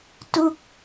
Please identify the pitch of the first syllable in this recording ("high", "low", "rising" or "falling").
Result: falling